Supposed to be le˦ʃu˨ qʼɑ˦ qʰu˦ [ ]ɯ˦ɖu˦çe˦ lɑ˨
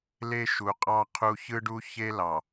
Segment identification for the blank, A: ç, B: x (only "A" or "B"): A